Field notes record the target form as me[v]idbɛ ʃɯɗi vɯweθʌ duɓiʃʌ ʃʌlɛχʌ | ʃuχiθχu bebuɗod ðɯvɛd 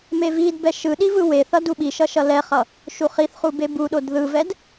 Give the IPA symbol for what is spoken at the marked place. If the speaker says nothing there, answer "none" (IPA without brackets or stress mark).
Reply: v